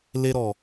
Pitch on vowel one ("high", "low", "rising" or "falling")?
high